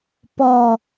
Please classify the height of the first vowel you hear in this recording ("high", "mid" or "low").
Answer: mid